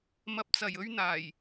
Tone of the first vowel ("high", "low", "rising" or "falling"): low